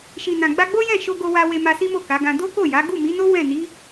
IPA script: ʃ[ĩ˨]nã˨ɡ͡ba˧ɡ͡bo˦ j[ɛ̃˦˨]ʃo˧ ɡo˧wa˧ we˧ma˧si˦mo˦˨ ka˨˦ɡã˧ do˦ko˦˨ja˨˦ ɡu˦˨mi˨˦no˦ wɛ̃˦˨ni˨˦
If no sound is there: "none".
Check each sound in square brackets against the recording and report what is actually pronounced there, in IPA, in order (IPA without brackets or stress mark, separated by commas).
i˨, ɛ̃˦˨